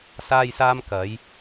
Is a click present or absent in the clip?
absent